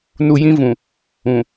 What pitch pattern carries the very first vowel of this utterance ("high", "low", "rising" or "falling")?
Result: low